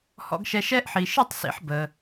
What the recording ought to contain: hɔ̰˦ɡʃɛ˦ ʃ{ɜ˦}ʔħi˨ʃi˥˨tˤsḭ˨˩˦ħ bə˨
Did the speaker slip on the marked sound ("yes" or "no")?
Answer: yes